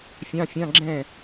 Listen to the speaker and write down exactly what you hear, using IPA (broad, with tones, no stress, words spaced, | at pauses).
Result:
fʲɑ̃˧˥˧fʲɑ̃˧˥˧ɡ͡ǁɛ̃˥˩